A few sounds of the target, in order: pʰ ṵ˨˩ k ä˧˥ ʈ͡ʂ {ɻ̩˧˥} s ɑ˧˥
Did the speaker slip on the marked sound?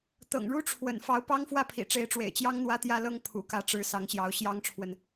no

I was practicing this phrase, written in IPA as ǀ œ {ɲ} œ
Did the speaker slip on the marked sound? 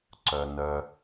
yes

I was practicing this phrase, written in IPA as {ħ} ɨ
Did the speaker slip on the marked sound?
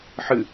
no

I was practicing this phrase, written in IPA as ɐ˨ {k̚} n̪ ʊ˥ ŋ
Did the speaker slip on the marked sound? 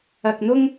no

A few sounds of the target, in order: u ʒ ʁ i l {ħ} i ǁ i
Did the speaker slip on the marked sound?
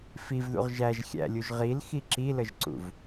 yes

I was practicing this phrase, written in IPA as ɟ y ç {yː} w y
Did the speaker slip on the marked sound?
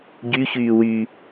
no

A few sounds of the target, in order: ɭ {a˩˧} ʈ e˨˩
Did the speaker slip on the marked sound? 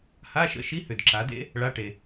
yes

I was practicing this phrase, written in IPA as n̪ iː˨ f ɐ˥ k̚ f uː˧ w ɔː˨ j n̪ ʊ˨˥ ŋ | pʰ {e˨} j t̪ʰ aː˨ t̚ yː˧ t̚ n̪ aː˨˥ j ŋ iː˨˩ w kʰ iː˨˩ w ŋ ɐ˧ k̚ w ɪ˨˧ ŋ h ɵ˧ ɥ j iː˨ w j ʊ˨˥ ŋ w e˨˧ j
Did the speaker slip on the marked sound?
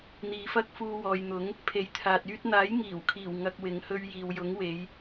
no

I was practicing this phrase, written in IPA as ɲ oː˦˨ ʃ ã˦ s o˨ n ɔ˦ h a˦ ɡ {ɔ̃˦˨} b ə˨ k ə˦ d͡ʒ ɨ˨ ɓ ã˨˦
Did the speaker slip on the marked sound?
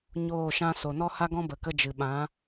yes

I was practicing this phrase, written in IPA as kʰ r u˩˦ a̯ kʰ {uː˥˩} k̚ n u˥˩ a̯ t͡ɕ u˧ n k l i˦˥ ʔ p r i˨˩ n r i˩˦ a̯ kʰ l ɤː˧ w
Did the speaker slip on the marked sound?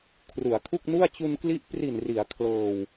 yes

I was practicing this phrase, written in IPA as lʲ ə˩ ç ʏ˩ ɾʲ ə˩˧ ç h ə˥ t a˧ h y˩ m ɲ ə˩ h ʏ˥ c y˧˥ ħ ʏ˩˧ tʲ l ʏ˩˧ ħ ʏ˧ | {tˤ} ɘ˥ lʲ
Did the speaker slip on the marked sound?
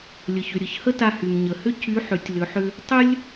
no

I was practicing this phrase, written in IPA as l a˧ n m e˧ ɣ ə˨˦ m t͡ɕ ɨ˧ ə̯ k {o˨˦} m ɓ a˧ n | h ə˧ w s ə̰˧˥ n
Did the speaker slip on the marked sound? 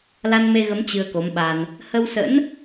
no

